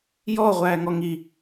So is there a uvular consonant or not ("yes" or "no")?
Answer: yes